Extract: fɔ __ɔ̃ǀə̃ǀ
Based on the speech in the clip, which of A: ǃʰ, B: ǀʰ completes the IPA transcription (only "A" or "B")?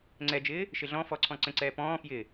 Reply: B